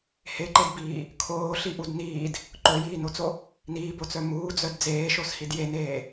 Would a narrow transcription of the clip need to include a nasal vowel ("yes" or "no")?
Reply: no